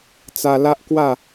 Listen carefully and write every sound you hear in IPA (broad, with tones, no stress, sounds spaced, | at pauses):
t͡s a˧ l a˦ ʔ k w a˥˧